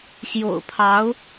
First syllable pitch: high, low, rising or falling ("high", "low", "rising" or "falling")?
low